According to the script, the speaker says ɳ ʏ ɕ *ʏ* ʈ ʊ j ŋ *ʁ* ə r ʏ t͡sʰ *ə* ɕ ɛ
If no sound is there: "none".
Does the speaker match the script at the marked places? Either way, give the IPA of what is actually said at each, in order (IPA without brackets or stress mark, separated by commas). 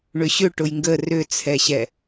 ʏ, ɡ, ɛ